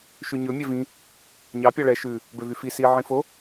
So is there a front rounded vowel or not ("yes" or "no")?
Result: yes